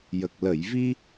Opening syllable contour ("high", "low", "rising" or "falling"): low